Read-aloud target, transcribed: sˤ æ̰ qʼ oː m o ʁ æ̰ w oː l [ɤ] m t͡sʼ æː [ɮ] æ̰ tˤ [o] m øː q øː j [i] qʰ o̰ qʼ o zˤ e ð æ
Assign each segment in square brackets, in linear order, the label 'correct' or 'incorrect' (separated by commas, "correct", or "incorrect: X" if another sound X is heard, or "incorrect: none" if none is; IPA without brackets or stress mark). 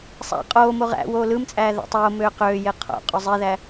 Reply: incorrect: ɯ, incorrect: ð, incorrect: oː, incorrect: e